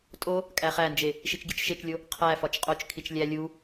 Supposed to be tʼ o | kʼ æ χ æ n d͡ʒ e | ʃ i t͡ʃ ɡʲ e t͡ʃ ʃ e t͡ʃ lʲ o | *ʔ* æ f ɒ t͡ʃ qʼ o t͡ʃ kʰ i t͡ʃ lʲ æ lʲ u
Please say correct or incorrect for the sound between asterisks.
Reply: incorrect: qʰ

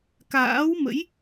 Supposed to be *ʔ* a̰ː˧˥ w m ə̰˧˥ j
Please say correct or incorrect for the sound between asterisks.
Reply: incorrect: k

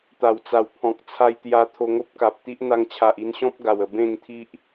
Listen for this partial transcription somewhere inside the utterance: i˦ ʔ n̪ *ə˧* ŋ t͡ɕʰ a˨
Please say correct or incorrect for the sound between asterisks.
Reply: incorrect: a˧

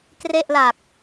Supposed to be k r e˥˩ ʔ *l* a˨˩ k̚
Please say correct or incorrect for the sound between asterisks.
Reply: correct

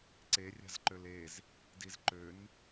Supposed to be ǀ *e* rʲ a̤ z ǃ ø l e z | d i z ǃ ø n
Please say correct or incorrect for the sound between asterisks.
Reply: correct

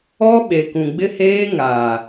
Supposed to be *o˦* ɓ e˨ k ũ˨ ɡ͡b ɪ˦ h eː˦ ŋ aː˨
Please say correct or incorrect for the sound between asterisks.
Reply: incorrect: ɔ˦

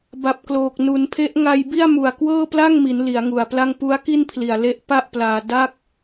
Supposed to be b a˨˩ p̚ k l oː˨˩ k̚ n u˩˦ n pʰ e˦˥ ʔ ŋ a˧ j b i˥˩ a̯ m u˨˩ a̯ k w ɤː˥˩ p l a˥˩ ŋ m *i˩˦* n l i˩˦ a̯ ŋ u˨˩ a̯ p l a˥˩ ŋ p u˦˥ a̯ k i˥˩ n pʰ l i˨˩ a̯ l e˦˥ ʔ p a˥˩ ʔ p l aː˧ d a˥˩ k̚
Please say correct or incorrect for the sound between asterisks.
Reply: correct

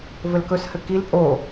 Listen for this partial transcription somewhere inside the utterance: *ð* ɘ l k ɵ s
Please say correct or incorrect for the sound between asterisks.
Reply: incorrect: v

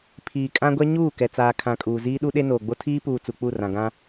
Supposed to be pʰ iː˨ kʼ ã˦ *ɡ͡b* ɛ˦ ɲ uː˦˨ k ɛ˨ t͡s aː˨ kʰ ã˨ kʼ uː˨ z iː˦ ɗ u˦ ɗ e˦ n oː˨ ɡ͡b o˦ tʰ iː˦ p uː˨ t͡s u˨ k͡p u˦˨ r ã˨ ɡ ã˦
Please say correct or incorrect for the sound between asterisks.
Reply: incorrect: ɡʷ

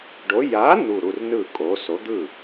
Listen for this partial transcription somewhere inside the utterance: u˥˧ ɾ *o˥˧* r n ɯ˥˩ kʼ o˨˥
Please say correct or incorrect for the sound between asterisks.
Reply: incorrect: u˥˧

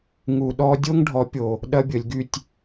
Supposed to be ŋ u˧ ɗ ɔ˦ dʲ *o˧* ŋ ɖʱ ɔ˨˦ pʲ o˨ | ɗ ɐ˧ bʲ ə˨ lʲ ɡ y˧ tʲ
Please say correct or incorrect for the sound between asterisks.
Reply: incorrect: o˦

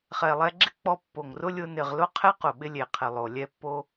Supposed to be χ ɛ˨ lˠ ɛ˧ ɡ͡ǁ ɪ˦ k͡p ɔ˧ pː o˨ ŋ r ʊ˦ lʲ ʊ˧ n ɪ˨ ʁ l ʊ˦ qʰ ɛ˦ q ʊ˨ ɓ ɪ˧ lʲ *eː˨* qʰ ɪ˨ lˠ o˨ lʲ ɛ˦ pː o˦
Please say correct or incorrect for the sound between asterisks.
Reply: incorrect: e˨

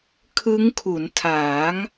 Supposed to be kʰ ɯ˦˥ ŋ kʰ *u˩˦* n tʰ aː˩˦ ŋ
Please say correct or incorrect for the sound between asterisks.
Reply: correct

